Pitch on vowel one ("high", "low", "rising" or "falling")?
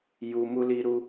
low